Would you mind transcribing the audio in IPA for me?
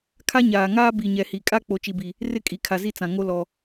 kʰ a˦ ɲ aː˨ ŋ aː˦ b i˨ ɲ ɛ˨ h i˨ kʼ a˦ k͡p o˦ t͡ʃ i˦ b i˦ | r ɪ˦ kʼ i˨ kʰ a˨ z i˦ t͡s ã˨ ŋ o˦ l ɔ˦

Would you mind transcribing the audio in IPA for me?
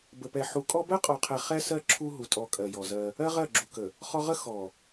b ə˨ p ɛ˨ ħ u˨ kʼ ɔ˦ b ɜ˦ qʼ ɔ˨ qʰ ɛ˨ χ ɛ˦ s ɜ˦ ǁʰ u˦ ɦ u˨ tʼ ɔ˨ kʼ ɜ˨ j ɔ˨ z ɜ˦ | ɜ˦ ʁ ɜ˦˨ ɡ͡ǁ u˨ k ə˨ | χ ɔ˦ ʁ ə˦ x ɔ˨

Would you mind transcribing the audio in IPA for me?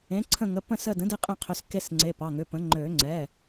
ẽ˩˥ ǀʰ ə̃˦˨ ŋ ə˩˧˩ p ə̃˦˨ s ə˦˨ d ə̃˩˥ d e˦˨ qʼ ẽ˦˨ qʰ ʏ˩˧˩ s k e˦˨ s ŋ͡ǀ e˩˧˩ p ɑ˩˧˩ ŋ ʏ˩˧˩ p ə̃˩˥ ŋ͡ǃ ø˨˩˦ ŋ͡ǀ ɛ˩˧˩

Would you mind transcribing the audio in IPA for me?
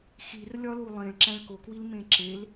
x i r lʲ ɒ l u lˠ ĩ ɭ ǁ æ̃ ɭ k o k w i l m ẽ ǁ e l

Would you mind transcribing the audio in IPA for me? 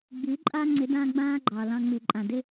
ɡ͡b i˨˦ ǃʼ a˦ ŋ͡ǀ ɪ˨˦ d ã˦ ɡ͡b ãː˦ ɡ͡ǃ ɑ˨ l ɑ̃˧ ŋ͡m i˨ ǃʼ ã˨ d ɪ˦

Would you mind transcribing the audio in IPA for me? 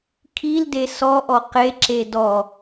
kʰ i l d e s ɔ ʔ ɔ q e ǁ e d ɔ

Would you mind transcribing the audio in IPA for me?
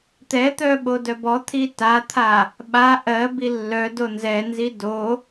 t̪ ɛ t̪ œ ɓ o d œ b ɔ t̪ʰ i t a t̪ʰ a | ɓ a ʔ ɜ b i lː œ d o n z ɛ n z i d o

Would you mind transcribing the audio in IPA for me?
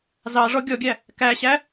z ɑ ʐ ɔ ɡʲ ɔ ɡʲ æ | k æ ɕ æ

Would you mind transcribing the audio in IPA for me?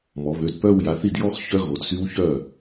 m ɔ˩˧ β ø˩˧˩ d p œ˥˧ w j a˩˧˩ θ i˥˩ d j ɔ˥˧ x ç œ˦˥ ɣ o˩˧ d s y˦˥ w ç œ˥˩

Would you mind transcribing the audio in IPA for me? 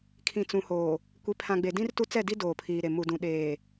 kʰ ĩ˨ t͡s ũ˨ h oː˨ | kʷ i˨ pʰ ã˨ ɡ͡b e˨ d ĩ˦ r t u˦ t͡s ɛ˦˨ d i˦ d oː˨ pʰ iː˨ ɾ e˨ m u˨ d ũ˨ ɗ eː˨

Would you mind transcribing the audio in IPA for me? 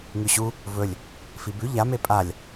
ŋ ʉ ɕ u | v ɵ lʲ | f i b ʉ ʎ a m e pʼ a lʲ

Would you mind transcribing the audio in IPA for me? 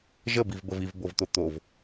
ʒ ə b i v b ə v i v b o v t̪ o t̪ o v

